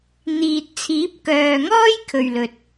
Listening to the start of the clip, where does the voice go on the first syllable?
low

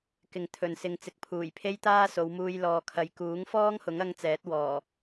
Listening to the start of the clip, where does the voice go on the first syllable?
low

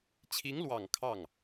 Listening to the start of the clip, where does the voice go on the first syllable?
rising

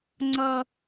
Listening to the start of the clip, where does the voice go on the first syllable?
high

